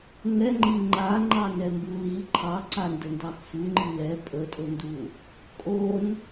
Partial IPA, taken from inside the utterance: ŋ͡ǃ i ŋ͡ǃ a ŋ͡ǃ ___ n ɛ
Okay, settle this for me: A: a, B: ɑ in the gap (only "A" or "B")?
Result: B